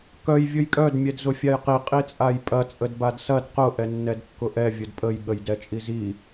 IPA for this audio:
k œ j vʲ ʊ j kʼ œ d mʲ ɛ d z ʊ fʲ a j q i qʼ i t͡sʼ a j pʼ ɐ t͡sʼ ə d b a d s ɐ d q ʊ ʔ ɛ nː ɛ d kː ʊ ʔ ɛ vʲ ʊ d pʼ ə j ɠ ə j d ɛ t͡ʃʼ i z i

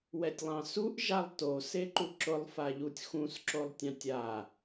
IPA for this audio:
w ɛ tʲ lˠ ɑ̃ s u ʔ ʒ a lˠ t o s e ǃ u ǁ ʊ lˠ f a ʎ u tʲ x ũ s ǁ o lˠ tʲ ɑ̃ tʲ a

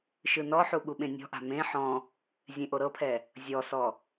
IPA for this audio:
ʃ ɯ n ɔ ħ u ɠ u ɓ ẽ nʲ ɔ̤ ʔ a̤ m ẽ ħ ɔ̃ | zʲ ẽ ʔ o ɾ ɤ pʰ ɛ | zʲ ɔ s ɔ

